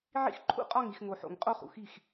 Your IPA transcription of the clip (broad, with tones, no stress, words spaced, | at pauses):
ʕḭ˦xǃʰṵ˦ qʼɒ˦˨ŋi˨x ŋo˨ħo̰˨ŋqʼo˦ χṵ˨xi˦˨x